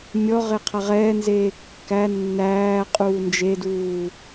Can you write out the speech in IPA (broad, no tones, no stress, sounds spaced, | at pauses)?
mʲ ɔ ʁ e qʰ a ʁ ɛː n z eː kː æ nː æː qʼ uː n d͡ʒ e d uː